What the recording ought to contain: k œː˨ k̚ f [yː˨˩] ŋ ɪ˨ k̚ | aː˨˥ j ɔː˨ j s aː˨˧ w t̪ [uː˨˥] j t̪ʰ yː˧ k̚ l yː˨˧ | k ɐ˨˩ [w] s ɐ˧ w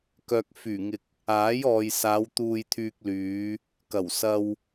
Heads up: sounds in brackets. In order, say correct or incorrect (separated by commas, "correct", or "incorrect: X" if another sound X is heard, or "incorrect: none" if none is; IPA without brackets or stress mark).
correct, incorrect: uː˧, correct